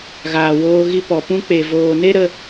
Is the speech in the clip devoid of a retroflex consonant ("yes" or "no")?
yes